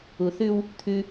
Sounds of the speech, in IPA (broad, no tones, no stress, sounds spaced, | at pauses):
u θ ʉ w | t̪ʰ ʉ